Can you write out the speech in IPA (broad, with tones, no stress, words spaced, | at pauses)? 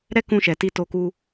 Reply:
ɾɛ˦kũ˧ʃɛ˨ ti˧to˧ku˧